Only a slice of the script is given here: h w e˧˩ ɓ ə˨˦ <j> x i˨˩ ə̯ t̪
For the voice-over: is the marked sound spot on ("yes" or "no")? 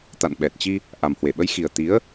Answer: yes